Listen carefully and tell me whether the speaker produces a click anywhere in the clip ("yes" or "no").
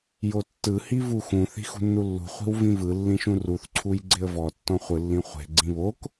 yes